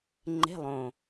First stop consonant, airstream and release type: click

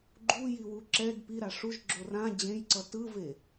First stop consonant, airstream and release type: click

